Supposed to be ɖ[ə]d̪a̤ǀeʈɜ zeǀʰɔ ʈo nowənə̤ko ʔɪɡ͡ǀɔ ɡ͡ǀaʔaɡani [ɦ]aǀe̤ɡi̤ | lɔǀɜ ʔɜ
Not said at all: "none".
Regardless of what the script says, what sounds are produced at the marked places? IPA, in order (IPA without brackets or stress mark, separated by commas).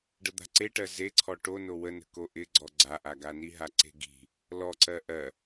ə, ɦ